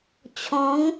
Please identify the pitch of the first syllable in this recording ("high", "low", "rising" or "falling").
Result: rising